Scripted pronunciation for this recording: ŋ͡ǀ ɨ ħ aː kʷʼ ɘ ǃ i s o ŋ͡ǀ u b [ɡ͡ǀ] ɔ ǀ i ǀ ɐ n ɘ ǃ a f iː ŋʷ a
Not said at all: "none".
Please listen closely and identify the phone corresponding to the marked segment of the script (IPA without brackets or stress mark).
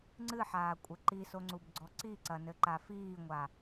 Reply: ɡ͡ǀ